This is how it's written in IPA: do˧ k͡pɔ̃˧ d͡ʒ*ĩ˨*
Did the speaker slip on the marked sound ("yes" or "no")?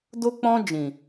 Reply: no